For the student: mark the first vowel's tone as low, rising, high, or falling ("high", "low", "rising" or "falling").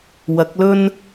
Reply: rising